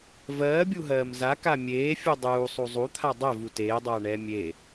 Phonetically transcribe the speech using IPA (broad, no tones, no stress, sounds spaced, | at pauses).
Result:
v ɜː bʲ u ɦ ɜː m z a k a mʲ eː fʲ u dˤ uː sˤ u zˤ u t̪ʰ a dˤ ɛ v u t eː dˤ aː ɳ ɛː mʲ e